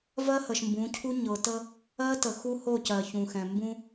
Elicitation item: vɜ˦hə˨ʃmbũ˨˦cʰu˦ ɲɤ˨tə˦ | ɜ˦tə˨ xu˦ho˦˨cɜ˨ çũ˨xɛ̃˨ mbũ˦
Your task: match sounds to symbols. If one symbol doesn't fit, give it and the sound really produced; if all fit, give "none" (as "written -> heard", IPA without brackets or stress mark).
none